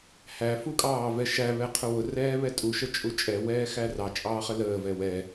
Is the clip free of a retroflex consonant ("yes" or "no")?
yes